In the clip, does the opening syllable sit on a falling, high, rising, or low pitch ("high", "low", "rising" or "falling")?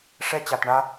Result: high